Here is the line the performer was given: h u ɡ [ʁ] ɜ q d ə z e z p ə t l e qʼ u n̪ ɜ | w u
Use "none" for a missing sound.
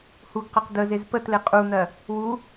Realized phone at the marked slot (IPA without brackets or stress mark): q